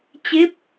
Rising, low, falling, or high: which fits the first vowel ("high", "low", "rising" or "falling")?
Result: rising